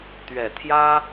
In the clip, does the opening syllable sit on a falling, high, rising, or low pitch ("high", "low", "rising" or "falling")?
low